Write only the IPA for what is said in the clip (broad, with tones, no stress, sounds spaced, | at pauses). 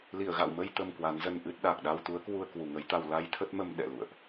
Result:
l i˧˩ ə̯ ɣ a̰˧˨ w m ə˧ j t̪ ə˧ m k w a˨˦ n z ə˧ n ʔ ɨ˦˥ t̚ ɗ a˨˩ k̚ ɗ a˧ w t̪ u˨˦ ə̯ k w u˧ ə̯ k w u˨˩ ŋ ə˨˦ j t̪ a˧ w l a˧ j t̪ʰ ə˦˥ t̚ m ə˧ m ɗ ɛ̰˧˨ l ṵ˧˨ ə̯ ʔ